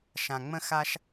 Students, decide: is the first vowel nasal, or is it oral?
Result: nasal